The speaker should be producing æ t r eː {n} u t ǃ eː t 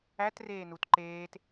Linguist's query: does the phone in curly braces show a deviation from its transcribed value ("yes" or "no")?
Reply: no